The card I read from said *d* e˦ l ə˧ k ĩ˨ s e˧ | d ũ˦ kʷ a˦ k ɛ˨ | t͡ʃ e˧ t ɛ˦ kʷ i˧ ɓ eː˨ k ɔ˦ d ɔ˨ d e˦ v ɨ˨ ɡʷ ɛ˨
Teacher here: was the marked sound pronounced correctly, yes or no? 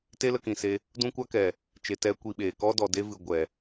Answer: no